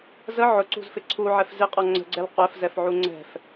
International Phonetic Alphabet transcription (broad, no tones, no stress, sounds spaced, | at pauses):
z ə ʕ ʊ ǀ ṳ z f ɪ ǀʰ u ʕ ɛ f z ɪ qʼ ɔ ŋ͡ǀ ə̤ ɡ͡ǀ ɛ l qʷ ɛ f z ɛ f ʕ u ŋ͡ǀ ɛ̤ f